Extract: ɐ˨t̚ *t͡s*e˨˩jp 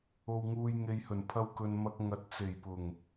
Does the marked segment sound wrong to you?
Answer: no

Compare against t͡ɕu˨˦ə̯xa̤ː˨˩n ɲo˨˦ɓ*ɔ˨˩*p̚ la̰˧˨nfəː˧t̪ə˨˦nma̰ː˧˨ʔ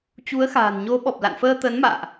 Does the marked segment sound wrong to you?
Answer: no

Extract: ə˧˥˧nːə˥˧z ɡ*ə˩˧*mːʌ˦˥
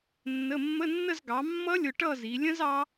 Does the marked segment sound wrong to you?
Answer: yes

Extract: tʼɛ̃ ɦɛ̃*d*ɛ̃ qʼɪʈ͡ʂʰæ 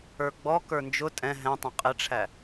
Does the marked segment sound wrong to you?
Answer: yes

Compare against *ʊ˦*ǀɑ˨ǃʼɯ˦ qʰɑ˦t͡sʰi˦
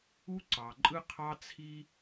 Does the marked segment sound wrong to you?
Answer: yes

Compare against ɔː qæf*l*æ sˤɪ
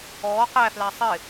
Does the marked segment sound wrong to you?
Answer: no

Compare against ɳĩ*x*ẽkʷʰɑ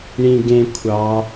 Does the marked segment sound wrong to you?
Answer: yes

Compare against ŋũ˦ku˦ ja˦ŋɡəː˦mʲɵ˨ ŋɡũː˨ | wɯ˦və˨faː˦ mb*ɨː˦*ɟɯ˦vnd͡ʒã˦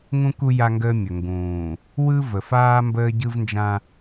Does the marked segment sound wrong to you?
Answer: yes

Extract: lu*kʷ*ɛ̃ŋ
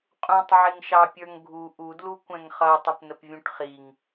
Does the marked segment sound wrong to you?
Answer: no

